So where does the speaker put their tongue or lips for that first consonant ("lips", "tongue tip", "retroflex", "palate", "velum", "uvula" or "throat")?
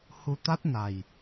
throat